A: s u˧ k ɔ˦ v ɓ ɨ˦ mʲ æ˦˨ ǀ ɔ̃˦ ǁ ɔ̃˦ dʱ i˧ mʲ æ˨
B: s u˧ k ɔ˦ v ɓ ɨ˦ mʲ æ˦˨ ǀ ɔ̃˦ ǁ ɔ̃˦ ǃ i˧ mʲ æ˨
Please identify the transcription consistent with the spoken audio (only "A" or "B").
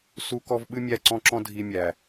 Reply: A